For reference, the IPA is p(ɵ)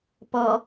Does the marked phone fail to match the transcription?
yes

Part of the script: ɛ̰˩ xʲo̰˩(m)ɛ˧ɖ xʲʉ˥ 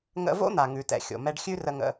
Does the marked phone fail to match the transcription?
no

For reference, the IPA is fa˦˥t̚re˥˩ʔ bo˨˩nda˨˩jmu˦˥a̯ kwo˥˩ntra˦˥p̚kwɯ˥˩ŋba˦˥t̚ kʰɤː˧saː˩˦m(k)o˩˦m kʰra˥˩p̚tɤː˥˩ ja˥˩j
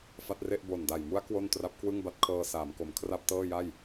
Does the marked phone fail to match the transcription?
no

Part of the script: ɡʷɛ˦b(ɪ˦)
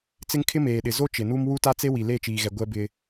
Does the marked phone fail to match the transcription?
no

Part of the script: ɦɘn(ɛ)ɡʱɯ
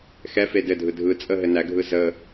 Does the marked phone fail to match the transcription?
yes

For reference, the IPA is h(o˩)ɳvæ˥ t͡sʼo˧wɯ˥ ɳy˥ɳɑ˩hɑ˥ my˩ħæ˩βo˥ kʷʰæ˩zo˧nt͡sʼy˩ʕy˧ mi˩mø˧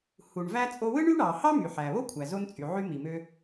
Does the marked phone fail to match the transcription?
yes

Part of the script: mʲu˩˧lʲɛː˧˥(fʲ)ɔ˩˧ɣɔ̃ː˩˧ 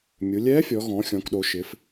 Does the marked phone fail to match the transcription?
no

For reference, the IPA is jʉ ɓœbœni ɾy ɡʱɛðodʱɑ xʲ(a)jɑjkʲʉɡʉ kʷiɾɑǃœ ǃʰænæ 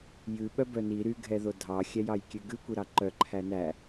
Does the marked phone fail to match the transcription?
yes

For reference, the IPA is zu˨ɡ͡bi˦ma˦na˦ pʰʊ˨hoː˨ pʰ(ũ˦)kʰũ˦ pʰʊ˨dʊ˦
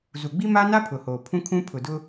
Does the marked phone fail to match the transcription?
no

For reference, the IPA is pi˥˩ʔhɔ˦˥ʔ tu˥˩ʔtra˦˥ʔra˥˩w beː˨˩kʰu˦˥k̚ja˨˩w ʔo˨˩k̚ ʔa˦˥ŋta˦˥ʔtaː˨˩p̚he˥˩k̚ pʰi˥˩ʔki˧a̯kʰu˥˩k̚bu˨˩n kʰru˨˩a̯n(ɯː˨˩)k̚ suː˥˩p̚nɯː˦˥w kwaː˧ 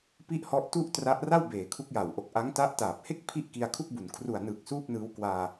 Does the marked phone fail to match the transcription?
no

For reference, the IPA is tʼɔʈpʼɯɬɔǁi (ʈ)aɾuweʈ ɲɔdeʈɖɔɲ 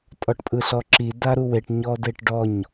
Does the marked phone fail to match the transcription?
yes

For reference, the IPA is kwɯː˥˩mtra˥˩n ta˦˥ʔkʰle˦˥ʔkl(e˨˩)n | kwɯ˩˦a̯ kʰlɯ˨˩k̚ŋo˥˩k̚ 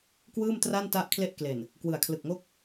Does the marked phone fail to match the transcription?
no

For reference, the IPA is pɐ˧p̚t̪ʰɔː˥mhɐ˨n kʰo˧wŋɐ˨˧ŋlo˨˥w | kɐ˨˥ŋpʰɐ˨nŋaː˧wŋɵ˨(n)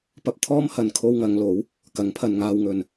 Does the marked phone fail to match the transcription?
no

